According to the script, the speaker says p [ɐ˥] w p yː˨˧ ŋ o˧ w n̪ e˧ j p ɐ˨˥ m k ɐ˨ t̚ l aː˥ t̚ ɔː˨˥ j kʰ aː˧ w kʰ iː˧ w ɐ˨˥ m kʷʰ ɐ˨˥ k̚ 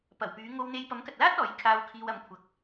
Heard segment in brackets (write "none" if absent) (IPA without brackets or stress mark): ɐ˨˩